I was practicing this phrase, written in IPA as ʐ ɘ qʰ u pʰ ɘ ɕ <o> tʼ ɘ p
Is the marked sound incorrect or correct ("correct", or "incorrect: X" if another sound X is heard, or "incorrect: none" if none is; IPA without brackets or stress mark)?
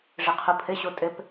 correct